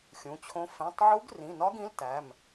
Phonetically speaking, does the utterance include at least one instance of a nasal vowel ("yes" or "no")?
yes